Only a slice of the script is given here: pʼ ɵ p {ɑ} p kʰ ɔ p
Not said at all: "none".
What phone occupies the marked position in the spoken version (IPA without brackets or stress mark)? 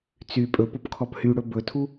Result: ɔ